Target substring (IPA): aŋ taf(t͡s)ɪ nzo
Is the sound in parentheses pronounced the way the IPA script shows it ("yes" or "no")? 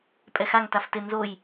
no